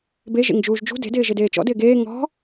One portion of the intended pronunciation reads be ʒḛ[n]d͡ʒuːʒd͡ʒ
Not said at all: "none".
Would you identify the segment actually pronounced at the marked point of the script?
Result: ŋ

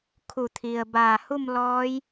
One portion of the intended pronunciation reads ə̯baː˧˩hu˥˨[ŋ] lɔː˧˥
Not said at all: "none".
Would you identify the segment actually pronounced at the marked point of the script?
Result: m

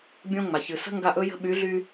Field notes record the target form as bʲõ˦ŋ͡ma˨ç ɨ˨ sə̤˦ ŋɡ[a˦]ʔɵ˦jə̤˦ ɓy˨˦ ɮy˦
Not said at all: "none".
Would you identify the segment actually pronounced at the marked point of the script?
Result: a˦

